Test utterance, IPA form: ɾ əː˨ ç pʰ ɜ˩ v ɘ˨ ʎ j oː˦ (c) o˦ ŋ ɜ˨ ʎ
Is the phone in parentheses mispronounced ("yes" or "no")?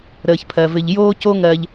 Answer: no